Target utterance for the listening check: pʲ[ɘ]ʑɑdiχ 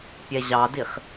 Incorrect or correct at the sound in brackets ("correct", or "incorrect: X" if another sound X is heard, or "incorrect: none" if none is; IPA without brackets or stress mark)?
incorrect: ɛ